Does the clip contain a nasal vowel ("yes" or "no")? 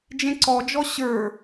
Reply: yes